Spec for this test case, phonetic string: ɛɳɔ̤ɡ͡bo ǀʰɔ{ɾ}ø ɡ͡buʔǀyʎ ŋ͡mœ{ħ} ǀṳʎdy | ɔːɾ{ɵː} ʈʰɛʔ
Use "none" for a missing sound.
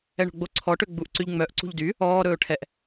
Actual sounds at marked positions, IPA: ʈ, ʔ, ɵː

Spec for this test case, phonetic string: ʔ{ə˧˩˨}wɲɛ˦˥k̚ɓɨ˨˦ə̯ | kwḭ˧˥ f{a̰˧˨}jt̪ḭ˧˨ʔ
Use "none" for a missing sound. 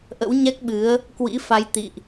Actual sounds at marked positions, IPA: ə̰˧˥, a˨˦

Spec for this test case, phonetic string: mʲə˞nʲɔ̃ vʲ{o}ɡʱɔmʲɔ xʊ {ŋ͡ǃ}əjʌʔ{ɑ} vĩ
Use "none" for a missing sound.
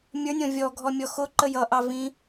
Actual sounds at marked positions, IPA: ɔ, ǃ, ɑ

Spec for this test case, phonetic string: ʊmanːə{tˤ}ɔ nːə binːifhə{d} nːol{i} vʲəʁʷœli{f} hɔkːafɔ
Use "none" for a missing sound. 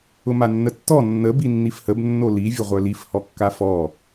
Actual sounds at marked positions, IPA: tː, b, i, f

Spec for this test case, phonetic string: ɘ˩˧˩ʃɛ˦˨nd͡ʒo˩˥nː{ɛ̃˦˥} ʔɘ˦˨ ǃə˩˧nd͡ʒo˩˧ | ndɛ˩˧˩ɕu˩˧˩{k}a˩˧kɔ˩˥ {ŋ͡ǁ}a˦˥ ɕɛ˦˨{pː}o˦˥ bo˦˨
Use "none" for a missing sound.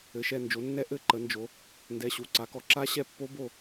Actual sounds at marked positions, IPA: ɛ˦˥, ǀ, ǁ, pː

